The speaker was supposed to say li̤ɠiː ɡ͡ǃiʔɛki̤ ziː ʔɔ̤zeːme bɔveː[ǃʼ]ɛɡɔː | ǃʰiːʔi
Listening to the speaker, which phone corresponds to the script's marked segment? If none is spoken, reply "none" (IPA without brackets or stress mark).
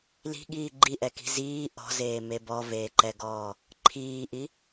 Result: ǃ